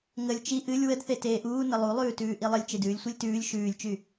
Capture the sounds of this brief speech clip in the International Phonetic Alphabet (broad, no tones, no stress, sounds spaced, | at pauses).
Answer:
ŋ ə lʲ t͡ʃ i ʔ ɨ lʲ w ə d θ e t eː ʔ uː n ə lˠ u lˠ ʉː t ʉː ʔ i lˠ ə lʲ t͡ʃ e d ʉː lʲ sʷ i lʲ t ʉː lʲ ʃ ʉː lʲ t͡ʃ y